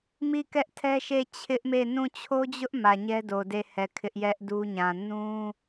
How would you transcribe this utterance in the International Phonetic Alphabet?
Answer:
m i˦˨ k ɛ˦ ʔ tʰ ɛ˦ ʃ e˦˨ t͡ɕʰ ɪ˦ ʔ m e˦˨ n ũ˦˨ t͡ɕʰ o˦ d͡ʑ ʊ˦ ʔ m ä˨ ɲ ɛ˦ d o˨ d e˦˨ h ɛ˨ kʰ ɪ˦ ʔ j ɛ˦ ʔ d u˦ ɲ ã˨ n ũ˦

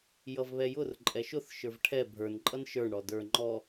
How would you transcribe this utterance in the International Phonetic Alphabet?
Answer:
j ʌ v β ɛ j ʊ r ǃʼ ɛ ʃ ʊ θ ʃ ə˞ v ʈʰ ɛ bʱ ə˞ n ǃʼ ʌ n ʃ ə˞ ɳ ɽ ɔ d ə˞ ŋ͡ǃ ɔ

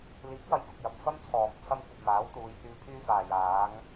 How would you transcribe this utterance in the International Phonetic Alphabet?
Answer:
l iː˨˥ k̚ w ɐ˨˧ j k ʊ˨ k̚ j ɐ˨ p̚ f ɐ˥ m t͡sʰ ɔː˨˩ m t͡sʰ ɐ˥ m kʷ ɐ˧ p̚ m aː˨˥ w t̪ uː˨˧ j h yː˧ pʰ yː˥ f aː˨ j aː˨˧ ŋ

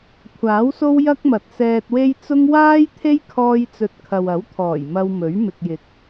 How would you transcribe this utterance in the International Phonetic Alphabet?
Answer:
kʷʰ aː˨˥ w s o˥ w j ɐ˥ k̚ m ɐ˨ t̚ s ɛː˧ t̚ w e˥ j t͡s ʊ˥ ŋ w aː˥ j t̪ʰ e˥ j kʰ ɔː˧ j t͡s ɵ˨ t̚ kʰ ɐ˨ w ɐ˨˥ w t̪ʰ ɔː˨˩ j m ɐ˧ w m ɵ˨˥ ɥ m ɪ˨ k̚ j ɪ˨˥ k̚

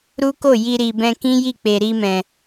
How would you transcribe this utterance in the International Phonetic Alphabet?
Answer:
ɾ u˦ k o˦˨ j i˧ ɾ i˨ b ɛ̃˧ k ĩ˦ j i˦˨ k͡p e˨ ɾ i˧ m ɛ̃˨

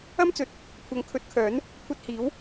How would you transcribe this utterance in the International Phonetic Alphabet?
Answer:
ɐ˥ m t͡s ɵ˨ t̚ | kʷʰ ɐ˨˥ ŋ kʰ ɵ˨˥ t̚ kʰ œː˨˥ n | kʷʰ ɐ˧ t̚ h iː˨˥ w

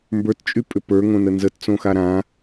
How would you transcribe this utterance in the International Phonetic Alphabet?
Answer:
m b ə˞ t t͡ʃʼ y pʼ ʏ p ə˞ ŋ õ n ə n z ə t t͡s õ x a ɾ ã

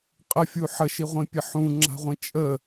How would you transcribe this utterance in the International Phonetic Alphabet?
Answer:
qʼ ə fʲ u ħ ə ʃ i ʁʷ ĩ pʲ ə ħ ũ ŋ͡ǁ a̤ ʁʷ ĩ t͡ʃʼ ə

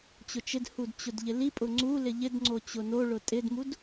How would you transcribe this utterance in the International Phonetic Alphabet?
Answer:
t͡ɕ ʊ t͡ʃ ɪ d h u d t͡ɕ ʊ d ʎ ɪ l i pʼ ʊ ŋ͡ǀ u l ɪ ʎ ɪ d ŋ͡ǀ o t͡ɕ ʊ n o ɭ ʊ tʼ ɪ d m u d

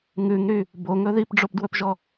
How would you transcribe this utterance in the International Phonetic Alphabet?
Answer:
ŋ ʉ ŋ ɾ y | b o ŋ ɵ ð i p ɖ͡ʐ o p d w ɵ p ʒ ɔ

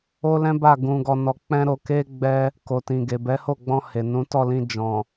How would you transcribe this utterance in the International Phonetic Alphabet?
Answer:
o˦ l ɛ̃˦ b a˦˨ ɡ ũ˧ ɡ ɔ˧ n ɔ˧ k͡p ɛ̃˦ ɾ o˧ k e˦ ɡ͡b ɛ˦ | k o˨ t ĩ˨ ɡ e˨ b ɛ˨˦ h o˦˨ ɡ͡b ɔ̃˧ h e˨ n ũ˨˦ t ɔ˦˨ l ĩ˧ d͡ʒ ɔ̃˨

